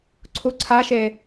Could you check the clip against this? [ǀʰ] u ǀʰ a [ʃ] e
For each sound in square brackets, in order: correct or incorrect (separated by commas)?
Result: correct, correct